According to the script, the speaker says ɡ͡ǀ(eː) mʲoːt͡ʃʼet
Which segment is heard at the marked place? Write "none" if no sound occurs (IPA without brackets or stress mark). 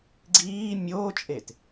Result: iː